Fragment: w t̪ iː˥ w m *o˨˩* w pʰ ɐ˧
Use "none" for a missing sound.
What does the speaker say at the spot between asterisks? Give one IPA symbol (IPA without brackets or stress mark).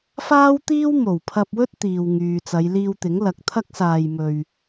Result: o˨˩